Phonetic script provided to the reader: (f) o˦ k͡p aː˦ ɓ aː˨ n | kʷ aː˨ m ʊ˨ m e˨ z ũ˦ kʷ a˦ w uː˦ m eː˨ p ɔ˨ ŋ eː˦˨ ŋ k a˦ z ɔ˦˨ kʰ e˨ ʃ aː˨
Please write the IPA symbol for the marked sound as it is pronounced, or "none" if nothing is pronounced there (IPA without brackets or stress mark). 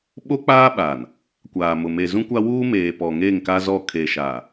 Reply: ɓ